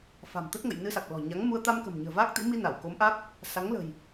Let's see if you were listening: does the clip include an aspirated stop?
no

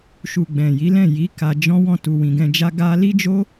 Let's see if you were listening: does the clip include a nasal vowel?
yes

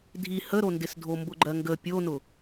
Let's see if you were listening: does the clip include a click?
yes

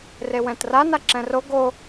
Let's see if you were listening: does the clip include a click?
yes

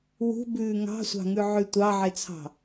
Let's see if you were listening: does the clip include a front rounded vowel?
yes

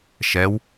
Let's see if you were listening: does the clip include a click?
no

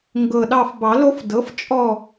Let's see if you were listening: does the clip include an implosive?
yes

